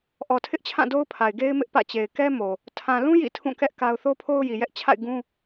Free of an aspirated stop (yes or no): no